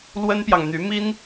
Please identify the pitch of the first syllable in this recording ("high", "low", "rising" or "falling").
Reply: high